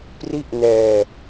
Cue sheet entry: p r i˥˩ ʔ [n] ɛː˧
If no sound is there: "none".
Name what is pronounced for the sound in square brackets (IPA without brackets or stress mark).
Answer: n